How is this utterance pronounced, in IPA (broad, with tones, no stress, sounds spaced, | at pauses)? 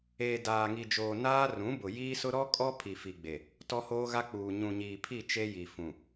eː˨ d aː˨ ŋ i˨ d͡ʒ oː˨ n aː˦ r ũ˨˦ b ʊ˨ j iː˦ s ʊ˦ ɾ ɔ˦ kʼ ɔ˦ pʰ i˨ f i˨ ɡ͡b e˨ | t ɔ˦ h oː˦ ɣ a˦ k͡p uː˨ ɲ ũ˨ ɲ iː˨ pʰ i˦˨ t͡ʃ e˦ j i˨ f ũ˨